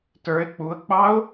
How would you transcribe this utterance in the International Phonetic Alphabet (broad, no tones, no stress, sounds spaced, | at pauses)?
t ə˞ ɪ̯ k͡p u ə̯ k͡p ɑ ʊ̯